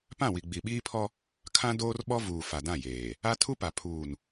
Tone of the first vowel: falling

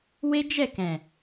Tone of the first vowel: high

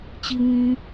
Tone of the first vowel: low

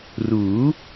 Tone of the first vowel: rising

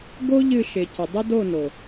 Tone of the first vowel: high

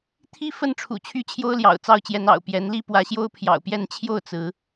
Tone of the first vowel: high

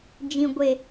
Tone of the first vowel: low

